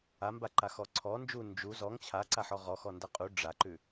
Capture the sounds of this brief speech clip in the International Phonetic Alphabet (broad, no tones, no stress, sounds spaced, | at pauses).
a m b a ǃ a x ɔ ǀʰ ɔ n d͡ʒ u n d͡ʒ u z ɔ ŋ t͡ɕʰ a ǀ a ħ ɔ ʁ ɔ x ɔ n d a qʼ u ɖ͡ʐ a ǃ ʉ